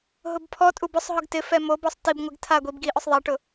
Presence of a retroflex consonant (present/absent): present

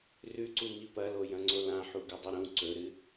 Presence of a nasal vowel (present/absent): present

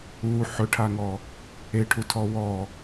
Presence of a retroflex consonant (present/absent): present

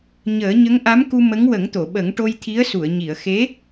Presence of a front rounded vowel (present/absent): absent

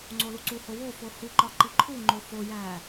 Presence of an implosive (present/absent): absent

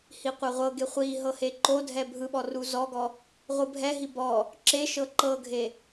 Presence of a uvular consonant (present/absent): present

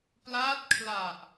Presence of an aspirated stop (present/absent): present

